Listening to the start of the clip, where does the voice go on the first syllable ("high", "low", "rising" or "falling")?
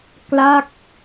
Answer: falling